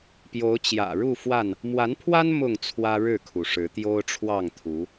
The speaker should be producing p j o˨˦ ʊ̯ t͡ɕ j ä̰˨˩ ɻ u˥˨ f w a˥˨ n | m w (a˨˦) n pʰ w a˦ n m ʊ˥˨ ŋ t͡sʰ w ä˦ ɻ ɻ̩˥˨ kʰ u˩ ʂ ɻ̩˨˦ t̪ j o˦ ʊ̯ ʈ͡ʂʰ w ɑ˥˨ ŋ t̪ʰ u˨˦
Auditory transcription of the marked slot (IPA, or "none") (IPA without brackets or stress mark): a˨˦